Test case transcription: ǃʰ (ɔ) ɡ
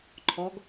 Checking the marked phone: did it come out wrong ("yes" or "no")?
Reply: no